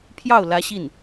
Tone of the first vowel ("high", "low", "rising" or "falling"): falling